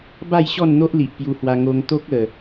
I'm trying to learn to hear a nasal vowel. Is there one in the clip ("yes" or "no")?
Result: no